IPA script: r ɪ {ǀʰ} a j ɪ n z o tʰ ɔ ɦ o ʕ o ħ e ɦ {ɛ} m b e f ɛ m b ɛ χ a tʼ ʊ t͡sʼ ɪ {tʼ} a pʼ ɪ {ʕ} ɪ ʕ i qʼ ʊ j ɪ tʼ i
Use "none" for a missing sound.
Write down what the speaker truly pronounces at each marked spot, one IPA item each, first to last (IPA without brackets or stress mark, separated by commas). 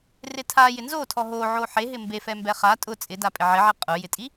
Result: tʰ, ɪ, d, ʕ